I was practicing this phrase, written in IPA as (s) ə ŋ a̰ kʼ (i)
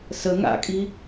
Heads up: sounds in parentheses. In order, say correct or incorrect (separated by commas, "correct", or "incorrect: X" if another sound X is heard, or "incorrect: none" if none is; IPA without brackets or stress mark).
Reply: correct, correct